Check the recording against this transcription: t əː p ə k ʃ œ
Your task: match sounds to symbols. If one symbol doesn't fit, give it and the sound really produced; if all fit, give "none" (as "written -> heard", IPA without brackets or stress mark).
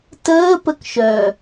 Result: none